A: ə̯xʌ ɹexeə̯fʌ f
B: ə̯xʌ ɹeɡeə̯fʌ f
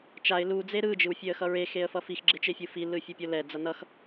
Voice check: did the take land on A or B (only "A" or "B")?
A